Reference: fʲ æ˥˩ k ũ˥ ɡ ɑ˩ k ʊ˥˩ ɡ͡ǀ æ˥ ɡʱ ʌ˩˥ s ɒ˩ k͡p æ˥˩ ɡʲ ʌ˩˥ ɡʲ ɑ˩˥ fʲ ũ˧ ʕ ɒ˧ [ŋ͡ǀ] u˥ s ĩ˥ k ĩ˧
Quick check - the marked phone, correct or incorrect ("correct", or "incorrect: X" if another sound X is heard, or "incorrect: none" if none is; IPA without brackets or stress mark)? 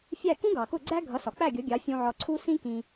incorrect: ǀʰ